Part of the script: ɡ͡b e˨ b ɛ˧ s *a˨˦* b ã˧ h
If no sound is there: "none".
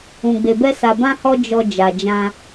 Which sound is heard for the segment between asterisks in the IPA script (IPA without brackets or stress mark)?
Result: a˨